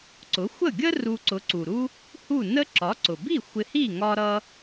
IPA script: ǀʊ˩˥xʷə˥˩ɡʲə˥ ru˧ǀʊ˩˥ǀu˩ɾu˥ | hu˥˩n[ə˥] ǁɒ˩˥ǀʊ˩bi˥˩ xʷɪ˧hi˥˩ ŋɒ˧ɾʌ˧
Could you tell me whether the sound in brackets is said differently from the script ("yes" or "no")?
no